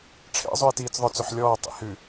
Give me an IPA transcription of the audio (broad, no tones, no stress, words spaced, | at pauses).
ʈ͡ʂʰḛzˤʉe̯ tiːt͡sðˤœt͡sɵħ lʲɔː tˤḭhʉ